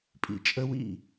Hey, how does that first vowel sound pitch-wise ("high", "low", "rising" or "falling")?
low